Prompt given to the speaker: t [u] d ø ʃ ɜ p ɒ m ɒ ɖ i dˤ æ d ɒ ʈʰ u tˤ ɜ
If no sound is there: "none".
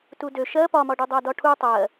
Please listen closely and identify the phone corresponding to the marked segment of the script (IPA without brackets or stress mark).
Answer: u